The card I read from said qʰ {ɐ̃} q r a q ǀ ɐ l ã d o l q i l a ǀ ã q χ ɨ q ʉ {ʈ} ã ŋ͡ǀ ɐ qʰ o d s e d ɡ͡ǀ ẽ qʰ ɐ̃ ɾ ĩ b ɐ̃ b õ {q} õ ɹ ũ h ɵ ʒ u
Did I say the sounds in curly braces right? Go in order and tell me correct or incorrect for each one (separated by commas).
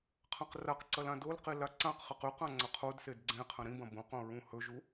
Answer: incorrect, incorrect, correct